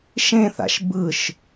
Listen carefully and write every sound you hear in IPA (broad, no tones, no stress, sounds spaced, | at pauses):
ʃ ẽ θ a̰ ʃ b ɯ ʃ